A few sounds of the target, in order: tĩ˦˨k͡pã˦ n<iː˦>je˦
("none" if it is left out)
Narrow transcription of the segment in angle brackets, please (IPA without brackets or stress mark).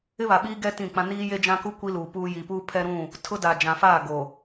iː˦